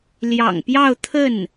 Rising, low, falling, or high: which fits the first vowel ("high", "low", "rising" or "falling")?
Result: low